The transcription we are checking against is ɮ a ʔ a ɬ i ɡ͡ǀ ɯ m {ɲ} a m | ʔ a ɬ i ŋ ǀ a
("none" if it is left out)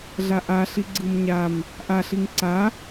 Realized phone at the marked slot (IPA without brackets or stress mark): ɲ